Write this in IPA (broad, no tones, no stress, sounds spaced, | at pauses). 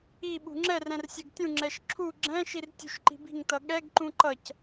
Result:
i ɓ ṳ ŋ͡ǁ ɛ r ɛ̃ r sʲ ɛ ɡ tʲ ũ ŋ͡ǁ ɛ ʃ ǁʰ u ɡ͡ǁ ɛ̃ ʃ i r tʲ ṳ ʃ ǃ i̤ b i̤ ŋ t ʌ ɠ ɛ ɡ ǃ ũ ǃ ʌ c